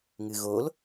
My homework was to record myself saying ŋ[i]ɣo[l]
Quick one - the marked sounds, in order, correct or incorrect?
incorrect: ɨ, correct

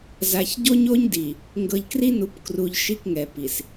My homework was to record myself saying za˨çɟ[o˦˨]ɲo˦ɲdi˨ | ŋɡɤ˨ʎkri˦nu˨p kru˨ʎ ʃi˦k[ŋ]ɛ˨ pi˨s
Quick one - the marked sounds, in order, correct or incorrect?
incorrect: o˦, correct

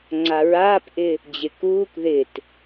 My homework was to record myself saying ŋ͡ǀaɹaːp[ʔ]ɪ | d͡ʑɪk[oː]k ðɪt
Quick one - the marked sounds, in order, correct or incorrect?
correct, incorrect: uː

